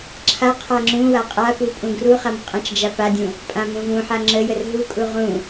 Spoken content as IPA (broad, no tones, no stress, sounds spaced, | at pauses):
ǁʰ a qʰ a ŋ͡ǁ ũ w a qʼ a p u pʼ ũ ɡ r u χ a m qʼ ã t͡ʃ d͡ʒ a p a dʲ ũ | pʼ ã m ũ v ũ ħ a ŋ͡ǁ ə j ə r ɦ u kʼ u ʁ ũ